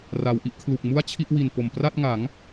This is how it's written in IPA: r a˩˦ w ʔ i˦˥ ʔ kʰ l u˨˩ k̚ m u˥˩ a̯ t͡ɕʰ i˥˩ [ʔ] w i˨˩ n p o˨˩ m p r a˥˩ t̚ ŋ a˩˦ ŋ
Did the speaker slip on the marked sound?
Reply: no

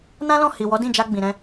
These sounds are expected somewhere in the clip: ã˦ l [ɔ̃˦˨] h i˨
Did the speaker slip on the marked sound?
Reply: no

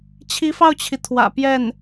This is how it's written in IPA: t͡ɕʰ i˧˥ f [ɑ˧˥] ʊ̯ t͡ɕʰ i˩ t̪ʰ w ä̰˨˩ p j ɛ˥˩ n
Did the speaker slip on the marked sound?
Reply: yes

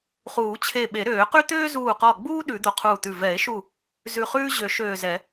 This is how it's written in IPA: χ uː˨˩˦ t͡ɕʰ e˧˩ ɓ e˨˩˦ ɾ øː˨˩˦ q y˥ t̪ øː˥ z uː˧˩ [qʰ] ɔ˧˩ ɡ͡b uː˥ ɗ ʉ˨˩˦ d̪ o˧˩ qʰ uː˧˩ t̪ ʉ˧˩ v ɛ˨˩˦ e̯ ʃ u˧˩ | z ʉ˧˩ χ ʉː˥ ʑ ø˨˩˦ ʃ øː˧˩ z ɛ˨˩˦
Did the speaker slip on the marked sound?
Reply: yes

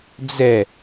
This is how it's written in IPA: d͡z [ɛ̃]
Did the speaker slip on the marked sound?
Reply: yes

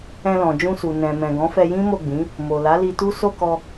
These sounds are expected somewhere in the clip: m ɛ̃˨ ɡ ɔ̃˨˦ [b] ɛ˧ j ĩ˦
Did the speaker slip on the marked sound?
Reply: yes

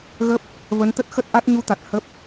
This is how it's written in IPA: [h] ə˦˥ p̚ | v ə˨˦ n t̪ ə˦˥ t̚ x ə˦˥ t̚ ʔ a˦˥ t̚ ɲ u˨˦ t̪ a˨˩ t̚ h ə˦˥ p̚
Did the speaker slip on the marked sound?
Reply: yes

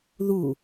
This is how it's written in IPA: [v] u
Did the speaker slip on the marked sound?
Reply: yes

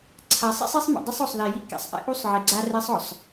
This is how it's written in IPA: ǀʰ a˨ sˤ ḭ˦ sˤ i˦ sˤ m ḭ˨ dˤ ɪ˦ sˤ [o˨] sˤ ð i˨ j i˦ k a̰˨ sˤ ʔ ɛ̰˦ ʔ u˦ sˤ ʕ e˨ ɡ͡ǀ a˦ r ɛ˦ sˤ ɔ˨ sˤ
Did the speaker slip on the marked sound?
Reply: no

